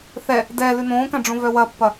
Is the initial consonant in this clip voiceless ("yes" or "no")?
yes